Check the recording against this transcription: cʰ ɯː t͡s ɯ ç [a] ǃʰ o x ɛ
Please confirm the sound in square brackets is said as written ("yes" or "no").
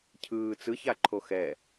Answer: yes